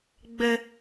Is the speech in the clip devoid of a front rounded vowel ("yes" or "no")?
yes